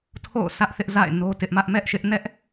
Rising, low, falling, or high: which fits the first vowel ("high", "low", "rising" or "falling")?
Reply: falling